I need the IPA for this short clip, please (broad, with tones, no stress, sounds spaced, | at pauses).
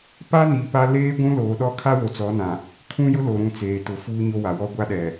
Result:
p a˦ n i˨ p a˦ l eː˦ ɡʷ ũ˦ l oː˨ ɗ ɔ˦ kʰ a˦ w o˨ t͡s ɔ˨˦ n ã˨ | kʰ ũ˦ j ʊ˦ l o˨ ɾ ũ˨ t͡s eː˨ t ʊ˨ f uː˦ ɲ o˦ w a˨ w ɔ˦ ɡʷ a˦ ɗ ɛ˨